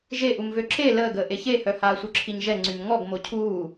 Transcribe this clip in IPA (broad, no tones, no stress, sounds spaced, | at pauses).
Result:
ʒ e ʔ u m v ø ǁ e l əː ɡ əː ʔ e ç e h œ h aː sʷ œ ǁʰ i ɲ ʒ ɛ ŋ͡ǀ y m ŋ ɔ ɡ m o cʰ uː